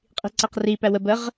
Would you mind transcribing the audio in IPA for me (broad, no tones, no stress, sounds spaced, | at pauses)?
qʼ i̤ ǀ æ q r i p æ w ə b ə ʁ